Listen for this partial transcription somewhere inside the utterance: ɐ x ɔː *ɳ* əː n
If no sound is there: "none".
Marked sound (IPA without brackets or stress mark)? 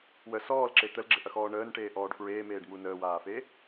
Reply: ɳ